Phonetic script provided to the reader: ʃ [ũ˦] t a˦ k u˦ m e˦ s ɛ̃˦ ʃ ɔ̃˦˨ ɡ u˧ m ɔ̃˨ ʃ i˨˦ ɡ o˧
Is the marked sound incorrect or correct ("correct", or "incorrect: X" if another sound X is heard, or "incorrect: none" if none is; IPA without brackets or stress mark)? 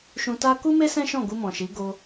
incorrect: ũ˧